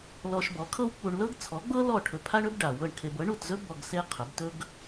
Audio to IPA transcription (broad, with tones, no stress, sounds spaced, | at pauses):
l ɔ˧ ʃ b ɔ˩˥ kʰ ɤ˥ w k͡p u˧ ɳ l ɤ˥ ɡ t͡sʰ ɔ˩˥ ɡ͡b ɤ˥ l ɔ˥˩ ʈʰ ɵ˧ pʰ a˥ ɳ ɵ˩˥ b ɖ a˩ w ɤ˥˩ ɳ kʰ e˧ b ɤ˩˥ ɳ u˥˩ t z ɵ˥ b ɔ˧ ɡ s e˥ qʰ ɵ˩˥ b t ɵ˥ ɡ